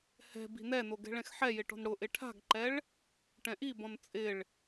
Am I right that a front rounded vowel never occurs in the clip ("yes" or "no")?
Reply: yes